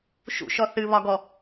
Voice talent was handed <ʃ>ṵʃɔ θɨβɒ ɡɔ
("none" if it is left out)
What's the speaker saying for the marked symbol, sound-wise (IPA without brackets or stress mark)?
ʃ